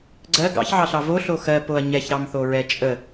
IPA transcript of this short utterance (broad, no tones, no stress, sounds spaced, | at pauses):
ɡ͡ǀ ɜ ɡ ɑ̰ ç ʕ ɑ ɬ ɑ v o ɬ o x ɜ p o ɐ̯ ɲ ɛ ç ɾ ɑ m θ o ɹ ɛ t͡ʃʼ ə